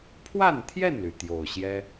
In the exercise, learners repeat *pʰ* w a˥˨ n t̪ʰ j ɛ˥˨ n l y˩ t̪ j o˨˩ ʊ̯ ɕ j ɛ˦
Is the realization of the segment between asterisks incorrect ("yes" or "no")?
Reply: no